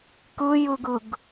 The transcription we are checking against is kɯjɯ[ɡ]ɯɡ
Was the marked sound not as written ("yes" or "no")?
no